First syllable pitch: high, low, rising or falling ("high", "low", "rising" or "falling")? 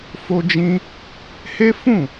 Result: high